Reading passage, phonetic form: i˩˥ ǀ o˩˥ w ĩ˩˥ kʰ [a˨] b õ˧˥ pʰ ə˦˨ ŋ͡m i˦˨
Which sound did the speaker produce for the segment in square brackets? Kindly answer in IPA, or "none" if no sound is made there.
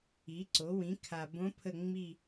a˨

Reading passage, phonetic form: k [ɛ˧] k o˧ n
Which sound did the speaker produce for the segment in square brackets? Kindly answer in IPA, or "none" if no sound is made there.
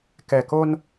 ɛ˨˩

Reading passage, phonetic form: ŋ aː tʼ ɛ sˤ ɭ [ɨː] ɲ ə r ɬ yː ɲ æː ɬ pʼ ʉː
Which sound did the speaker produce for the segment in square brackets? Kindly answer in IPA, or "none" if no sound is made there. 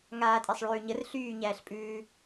ʉː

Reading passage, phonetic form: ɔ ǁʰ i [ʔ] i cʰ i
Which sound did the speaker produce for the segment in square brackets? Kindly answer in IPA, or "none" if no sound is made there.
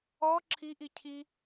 ʔ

